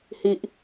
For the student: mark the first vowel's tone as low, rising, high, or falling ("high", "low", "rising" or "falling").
low